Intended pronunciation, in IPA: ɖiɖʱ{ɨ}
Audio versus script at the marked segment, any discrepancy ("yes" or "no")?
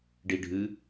no